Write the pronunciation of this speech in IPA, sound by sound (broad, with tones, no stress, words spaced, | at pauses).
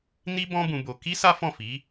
ni˦ bɔ̃˦bũ˧bo˧ ki˦ sa˦fɔ̃˦˨ fi˨˦